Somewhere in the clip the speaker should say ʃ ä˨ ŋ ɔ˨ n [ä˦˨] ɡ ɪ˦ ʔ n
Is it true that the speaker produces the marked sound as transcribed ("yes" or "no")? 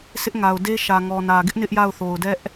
no